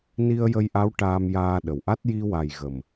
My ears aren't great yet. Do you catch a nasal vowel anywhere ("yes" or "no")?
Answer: no